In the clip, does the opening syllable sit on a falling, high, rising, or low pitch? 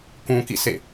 low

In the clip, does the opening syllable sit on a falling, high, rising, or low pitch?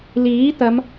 rising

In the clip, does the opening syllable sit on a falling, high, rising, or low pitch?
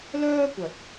high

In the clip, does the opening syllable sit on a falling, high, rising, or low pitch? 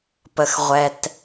low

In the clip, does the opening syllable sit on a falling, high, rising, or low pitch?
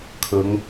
rising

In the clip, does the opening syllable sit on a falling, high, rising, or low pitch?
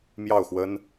falling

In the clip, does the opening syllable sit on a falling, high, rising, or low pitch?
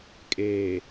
low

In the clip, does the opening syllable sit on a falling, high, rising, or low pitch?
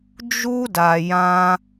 high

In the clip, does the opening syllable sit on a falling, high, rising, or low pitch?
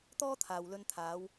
high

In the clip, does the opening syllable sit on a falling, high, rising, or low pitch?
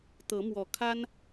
rising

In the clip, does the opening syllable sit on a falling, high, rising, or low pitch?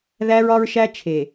high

